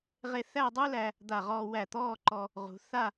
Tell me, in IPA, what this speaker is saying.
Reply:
ʁ e˧ θ æ˥˧ dˤ u˥ l æ˧ | d̪ a˧˩ ʁ ɔː˧ w æ˧˩ t̪ ɔː˥˧ ǃ ɔ˧ | ʁ ṳ˩˧ θ a˥˧

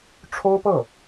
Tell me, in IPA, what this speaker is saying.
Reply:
ʈ͡ʂʰ o˥ ʊ̯ p ɤ˥˩

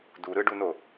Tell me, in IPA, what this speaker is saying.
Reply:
d u ɾ ɯ ɖ u n o

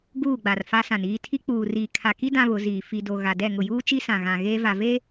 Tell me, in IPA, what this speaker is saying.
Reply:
ɡ uː˦˨ ɡ͡b a˨ r f a˦ s ã˨ n iː˨ tʰ i˦ k͡p uː˨ r iː˨ kʰ a˨ k i˦ d ã˦ β ʊ˨˦ z iː˨ f i˨ d o˨ ɣ a˨ d ɛ˦˨ ŋ ʊ˨ j uː˦ t͡ʃ i˦ s ã˨ ɣ ã˨ ɣ eː˦ v a˨ v eː˦

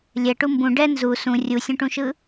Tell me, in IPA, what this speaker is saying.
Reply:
lʲ ɛ ʈ u m b ũ ɖ ɛ n z u s ũ rʲ u sʲ ũ ʈ ũ ʃ ɯ

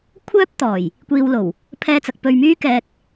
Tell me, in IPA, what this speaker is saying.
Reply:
kʷʰ œː˥ p̚ t̪ ɔː˨˩ j | kʷ iː˧ w l o˨˩ w | pʰ ɛː˧ t͡s ɐ˨ k̚ p ɵ˧ ɥ m yː˥ k ɛː˧ k̚

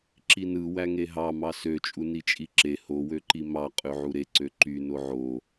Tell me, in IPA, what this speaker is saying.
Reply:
ǁ i n ɯ w æ ŋ e ɦ ɑ m ɑ s ø t͡ʃʼ u n i t͡ʃʼ i ǁ e h o w ø ǃ i m ɑ qʼ ø ʕ u ɾ e ǀ ø ǃ y n o ʕ o

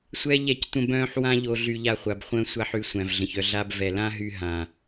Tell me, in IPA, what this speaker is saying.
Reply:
sʷ ɛ˦ ʎ ɛ˦ c tʷ ə̃˦ b œ̃ː˦ ħ w ã˦ ʎ o˧ ɮ y˧ ʎ a˧ χʷ a˨ b χʷ ə̃ː˦ sʷ a˦ ħ y˧ sʷ æ̃˨ v ɮ ə̃˨ ç œ˧ ɮ a˦ b v ɛ˨ l ã˦ ɦ y˧ ɦ ã˨

